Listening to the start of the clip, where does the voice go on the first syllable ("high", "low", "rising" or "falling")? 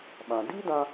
low